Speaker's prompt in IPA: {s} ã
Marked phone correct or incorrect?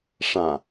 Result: incorrect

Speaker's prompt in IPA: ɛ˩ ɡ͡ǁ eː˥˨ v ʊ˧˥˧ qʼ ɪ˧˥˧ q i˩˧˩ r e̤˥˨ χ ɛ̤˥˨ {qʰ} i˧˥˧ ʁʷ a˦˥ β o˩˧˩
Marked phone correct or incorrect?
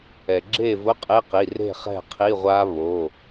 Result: correct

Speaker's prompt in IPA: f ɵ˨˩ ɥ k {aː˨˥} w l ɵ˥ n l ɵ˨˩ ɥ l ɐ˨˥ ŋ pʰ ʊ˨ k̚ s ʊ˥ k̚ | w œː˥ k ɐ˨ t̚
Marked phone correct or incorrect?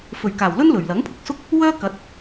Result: incorrect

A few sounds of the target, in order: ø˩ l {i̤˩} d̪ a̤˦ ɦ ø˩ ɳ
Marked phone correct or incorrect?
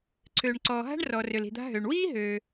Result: correct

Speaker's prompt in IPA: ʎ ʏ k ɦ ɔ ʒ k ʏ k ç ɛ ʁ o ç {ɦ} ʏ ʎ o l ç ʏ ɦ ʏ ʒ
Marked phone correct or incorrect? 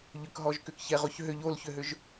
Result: correct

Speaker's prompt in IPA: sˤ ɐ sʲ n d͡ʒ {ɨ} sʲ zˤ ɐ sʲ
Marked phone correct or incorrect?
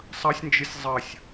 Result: correct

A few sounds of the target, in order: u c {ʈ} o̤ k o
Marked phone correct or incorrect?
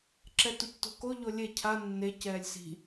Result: incorrect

